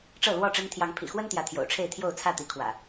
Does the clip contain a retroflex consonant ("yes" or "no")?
yes